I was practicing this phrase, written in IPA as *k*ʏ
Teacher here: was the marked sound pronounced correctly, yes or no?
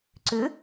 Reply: no